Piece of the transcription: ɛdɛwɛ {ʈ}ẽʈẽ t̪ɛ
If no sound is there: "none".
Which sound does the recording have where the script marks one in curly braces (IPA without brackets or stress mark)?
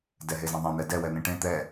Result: n̪